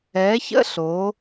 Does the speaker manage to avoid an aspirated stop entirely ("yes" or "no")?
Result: yes